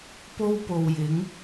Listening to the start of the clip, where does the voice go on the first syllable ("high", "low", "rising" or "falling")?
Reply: high